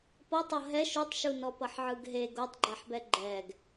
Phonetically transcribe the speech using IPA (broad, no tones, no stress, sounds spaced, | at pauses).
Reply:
p ʌ tˤ ʌ ɦ ɛ ʃ u tˤ ʃ u n ɔ p ʌ ħ ʕ ɯ ɡ ɦ e ɡ o tˤ ɡ͡ǃ a ħ b ɛ ɡ͡ǃ ɛ ɡ